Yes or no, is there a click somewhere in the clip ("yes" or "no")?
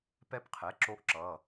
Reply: yes